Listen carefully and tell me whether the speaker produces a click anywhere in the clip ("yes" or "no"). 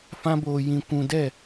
no